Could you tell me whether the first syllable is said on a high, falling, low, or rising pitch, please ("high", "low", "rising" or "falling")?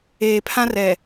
low